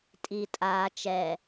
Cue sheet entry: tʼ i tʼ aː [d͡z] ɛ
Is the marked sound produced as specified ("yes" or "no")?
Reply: no